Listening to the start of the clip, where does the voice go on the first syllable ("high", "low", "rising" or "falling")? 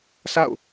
falling